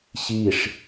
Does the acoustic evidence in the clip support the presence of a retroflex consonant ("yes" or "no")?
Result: yes